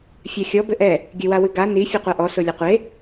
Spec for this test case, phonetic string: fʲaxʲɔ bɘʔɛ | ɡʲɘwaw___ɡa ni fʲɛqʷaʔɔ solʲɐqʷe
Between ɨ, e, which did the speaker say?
ɨ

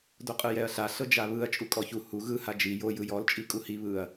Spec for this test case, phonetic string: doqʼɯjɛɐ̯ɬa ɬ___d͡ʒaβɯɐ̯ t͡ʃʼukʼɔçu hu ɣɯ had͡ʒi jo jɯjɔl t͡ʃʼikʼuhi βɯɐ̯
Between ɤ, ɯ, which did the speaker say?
ɤ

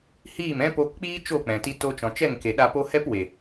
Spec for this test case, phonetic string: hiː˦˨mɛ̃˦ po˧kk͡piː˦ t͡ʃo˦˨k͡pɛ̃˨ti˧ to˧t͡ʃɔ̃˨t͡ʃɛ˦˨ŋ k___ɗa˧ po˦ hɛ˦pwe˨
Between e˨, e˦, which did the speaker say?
e˨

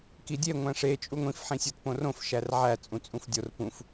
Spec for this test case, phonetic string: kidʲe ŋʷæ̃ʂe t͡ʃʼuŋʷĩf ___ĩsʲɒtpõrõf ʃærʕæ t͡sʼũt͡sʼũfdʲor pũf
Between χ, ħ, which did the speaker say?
ħ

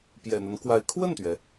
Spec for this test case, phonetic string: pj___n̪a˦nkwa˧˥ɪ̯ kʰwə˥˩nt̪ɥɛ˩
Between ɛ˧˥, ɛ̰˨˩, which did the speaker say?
ɛ̰˨˩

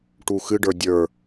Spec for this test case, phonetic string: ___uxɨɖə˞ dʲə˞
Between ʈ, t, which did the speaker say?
ʈ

